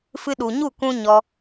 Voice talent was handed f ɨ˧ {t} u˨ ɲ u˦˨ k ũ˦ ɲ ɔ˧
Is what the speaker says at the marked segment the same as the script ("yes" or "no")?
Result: no